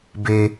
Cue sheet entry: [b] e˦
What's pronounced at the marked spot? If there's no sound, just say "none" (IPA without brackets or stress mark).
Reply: b